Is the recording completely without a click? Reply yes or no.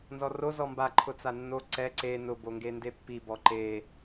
no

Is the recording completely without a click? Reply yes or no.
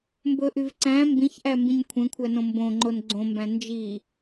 no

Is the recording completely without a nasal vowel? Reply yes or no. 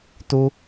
yes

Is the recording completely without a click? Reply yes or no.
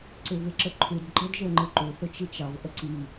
no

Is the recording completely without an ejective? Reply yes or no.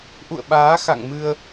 yes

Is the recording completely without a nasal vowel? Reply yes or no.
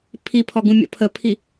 no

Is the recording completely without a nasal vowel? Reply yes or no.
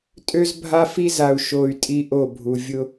yes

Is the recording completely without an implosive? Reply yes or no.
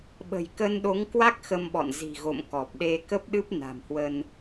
no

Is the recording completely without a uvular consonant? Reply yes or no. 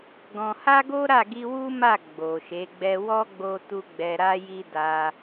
yes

